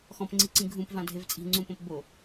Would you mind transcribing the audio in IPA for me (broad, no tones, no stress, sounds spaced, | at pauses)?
x ɔ̃ p ŋ͡ǀ i ǀ ĩ ɡʱ ũ p v ã dʱ e v t͡sʼ i̤ ŋ͡ǀ ũ p õ p b o